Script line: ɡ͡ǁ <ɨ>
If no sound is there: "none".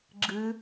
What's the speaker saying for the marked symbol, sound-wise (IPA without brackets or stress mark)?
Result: ɨ